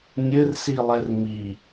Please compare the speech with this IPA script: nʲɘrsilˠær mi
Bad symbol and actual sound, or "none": æ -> ɛ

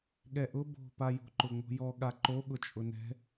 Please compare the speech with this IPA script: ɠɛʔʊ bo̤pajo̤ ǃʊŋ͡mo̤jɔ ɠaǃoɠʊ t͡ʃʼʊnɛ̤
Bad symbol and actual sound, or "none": none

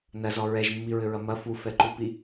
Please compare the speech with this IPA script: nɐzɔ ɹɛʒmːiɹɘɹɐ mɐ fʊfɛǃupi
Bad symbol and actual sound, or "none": ʊ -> u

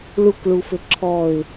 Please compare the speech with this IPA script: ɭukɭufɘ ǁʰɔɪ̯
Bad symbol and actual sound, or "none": none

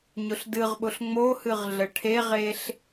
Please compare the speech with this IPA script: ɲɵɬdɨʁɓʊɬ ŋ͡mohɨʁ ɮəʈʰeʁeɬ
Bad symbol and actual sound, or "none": ɵ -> ʊ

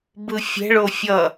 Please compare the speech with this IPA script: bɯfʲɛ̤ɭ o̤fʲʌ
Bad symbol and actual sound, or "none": o̤ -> o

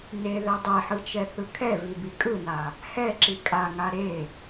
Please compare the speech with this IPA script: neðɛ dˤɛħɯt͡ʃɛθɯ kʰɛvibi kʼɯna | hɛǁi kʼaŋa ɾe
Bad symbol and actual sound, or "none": none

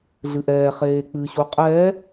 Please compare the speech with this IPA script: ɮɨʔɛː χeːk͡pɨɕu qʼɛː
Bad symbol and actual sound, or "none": none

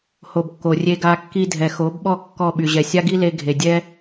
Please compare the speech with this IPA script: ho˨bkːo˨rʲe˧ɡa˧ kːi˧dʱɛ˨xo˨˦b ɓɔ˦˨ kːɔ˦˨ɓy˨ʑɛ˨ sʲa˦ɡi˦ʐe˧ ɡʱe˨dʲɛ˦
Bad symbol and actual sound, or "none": ʐ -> l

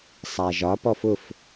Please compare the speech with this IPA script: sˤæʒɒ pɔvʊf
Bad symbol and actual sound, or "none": v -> f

